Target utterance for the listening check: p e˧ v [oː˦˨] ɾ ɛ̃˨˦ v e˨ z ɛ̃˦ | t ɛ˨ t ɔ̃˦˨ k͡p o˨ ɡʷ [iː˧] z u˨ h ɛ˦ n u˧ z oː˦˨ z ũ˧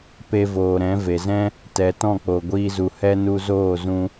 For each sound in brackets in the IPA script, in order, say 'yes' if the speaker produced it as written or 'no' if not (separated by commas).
no, yes